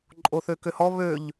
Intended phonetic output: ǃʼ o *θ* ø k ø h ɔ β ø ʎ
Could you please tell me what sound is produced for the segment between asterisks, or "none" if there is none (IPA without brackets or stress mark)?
θ